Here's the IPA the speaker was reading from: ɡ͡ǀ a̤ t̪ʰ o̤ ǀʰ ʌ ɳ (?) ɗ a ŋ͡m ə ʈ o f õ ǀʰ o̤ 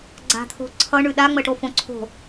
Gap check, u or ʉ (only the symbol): ʉ